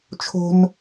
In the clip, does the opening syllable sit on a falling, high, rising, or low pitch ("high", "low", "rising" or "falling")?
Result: high